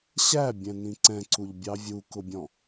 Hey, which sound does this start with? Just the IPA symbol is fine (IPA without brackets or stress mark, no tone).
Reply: ɕ